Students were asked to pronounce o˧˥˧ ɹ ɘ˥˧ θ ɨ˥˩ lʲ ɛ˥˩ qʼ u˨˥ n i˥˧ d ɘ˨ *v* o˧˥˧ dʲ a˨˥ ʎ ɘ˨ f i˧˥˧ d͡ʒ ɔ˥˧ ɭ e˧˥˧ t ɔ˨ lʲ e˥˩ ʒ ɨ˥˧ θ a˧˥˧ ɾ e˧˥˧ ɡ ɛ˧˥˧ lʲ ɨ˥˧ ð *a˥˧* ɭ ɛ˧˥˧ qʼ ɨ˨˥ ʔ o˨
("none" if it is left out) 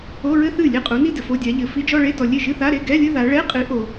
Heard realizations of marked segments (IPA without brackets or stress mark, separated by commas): f, a˨˥